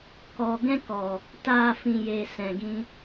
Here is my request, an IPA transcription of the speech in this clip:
k ɔ˨ ɡ ɛ̃˦ k ɔ˨ | t aː˨ f ĩ˨ j e˨ s ɛ̃˨ ɡ ĩ˧

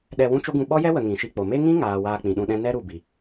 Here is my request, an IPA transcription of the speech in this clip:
ɗ ɛ˧ w ũ˦ t͡ʃ o˦ ɡ ũ˧ ɓ ɔ˦ j ɛ˦ w ə˨ ŋ ĩ˨ ʃ i˧ k͡p o˨ m e˦ ŋ ĩ˦ ŋ aː˨ w aː˧ k͡p ĩ˨ ɗ ũ˧ ɗ ɛ̃˦ n ɛ˦ ɾ u˨ b i˨

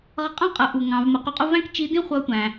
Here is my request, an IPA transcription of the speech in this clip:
ʁ ʌ˧ qʼ ɑ̃˥ qʼ ʌ˩˧ ʔ u˩ ŋ ɑ̃˩˧ v m ə˩˧ q u˧ qʼ ʊ˥ v æ̃˥ k t͡ʃ i˧˥ d ĩ˥ χʷ ʌ˧˥ tʷ æ̃˩

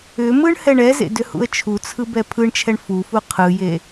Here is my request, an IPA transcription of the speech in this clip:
ʏ m ɯ ɳ h ɛ ɳ ɛ z ḛ d ʏ h ṵ ə̯ t͡ʃʰ u t͡sʰ ɯ b ɛ pʰ ɯ ɳ t͡ʃʰ ɛ ɳ f u f u qʰ ɯ j e

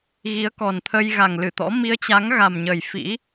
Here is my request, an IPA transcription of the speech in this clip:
ɣ i˨˦ ə̯ k ɔ˨˩ n t̪ʰ ə˧ j ɣ a˨˩ ŋ l ɨ˧˩ t̪ ɔ̰˧˥ m i˧ ə̯ t͡ɕ a˨˦ ŋ ɣ a˨˩ m ɲ ə˨˩ j f ḭ˧˥

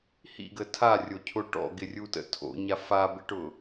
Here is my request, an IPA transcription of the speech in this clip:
h ḭ ɡ ə tʰ a rʲ o cʰ ʊ ʈ ɔ̰ ɡ ɪ rʲ u t ə̰ tʰ o̰ ɲ a f a b ɪ ʈ ʊ

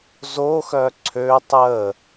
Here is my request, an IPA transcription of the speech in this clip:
z o x œ ǀʰ ø tˤ ə

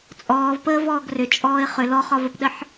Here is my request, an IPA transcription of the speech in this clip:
t͡sʼ ɔː v p əː v ɔː ɡ r ʏ t͡ʃʼ ɔː ɪ̯ χ ʏ l ɔ χ ɒ v ə p ɗ ə ħ

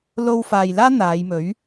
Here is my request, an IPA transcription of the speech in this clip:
l o˧ w f aː˨ j l aː˥ n̪ aː˨˧ j m ɵ˨˥ ɥ

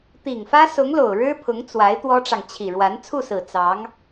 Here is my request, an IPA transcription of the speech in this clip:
t̪ i˨˩ ŋ f ä˥ s ʊ˧˥ ŋ l o˨˩ ʊ̯ ɻ ɻ̩˥ pʰ ʊ˧˥ ŋ t͡s w a˧˥ ɪ̯ t̪ w ɔ˥ ʈ͡ʂ ɑ˨ ŋ t͡ɕʰ i˨˩ ɻ w a˧˥ n t͡sʰ u˥˩ s ɹ̩˨˩ t͡s ɑ˧˥ ŋ

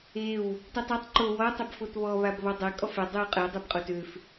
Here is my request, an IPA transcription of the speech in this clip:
e w | t y tˤ y tˤ ǃ o w ɔ tˤ e b f o t β ɔ β a b β ɔ dˤ ɛ kʼ ɔ f ɛ dˤ y w qʼ ɛ dˤ e b qʼ o t ø f

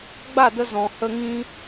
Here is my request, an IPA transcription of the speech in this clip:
ɡ͡b a˦˨ d ə˧ z ɔ̃˨ h ə˧ ŋ ĩ˦

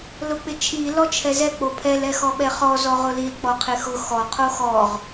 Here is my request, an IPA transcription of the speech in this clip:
l ʊ k͡p ɪ t͡ʃʰ i l ɔ t͡ʃʰ ɛ z ɛ k͡p o pʰ ɛ l ɛ x ɔ ɓ ɛ χ ɔ z ɔ ʁ ʊ l i l k͡p ɔ qʰ ɪ x ʊ x ɔ qʰ o x ɔ ʁ

